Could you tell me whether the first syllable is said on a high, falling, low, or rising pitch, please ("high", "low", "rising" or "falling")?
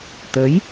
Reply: rising